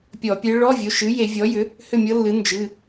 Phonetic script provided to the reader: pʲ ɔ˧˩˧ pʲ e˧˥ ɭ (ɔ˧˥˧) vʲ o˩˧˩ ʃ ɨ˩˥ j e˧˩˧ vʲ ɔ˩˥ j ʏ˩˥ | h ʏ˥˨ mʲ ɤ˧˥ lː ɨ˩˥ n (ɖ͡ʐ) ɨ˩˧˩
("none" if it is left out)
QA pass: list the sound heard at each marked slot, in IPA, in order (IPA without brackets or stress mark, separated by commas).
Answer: ɔ˧˥˧, d͡ʒ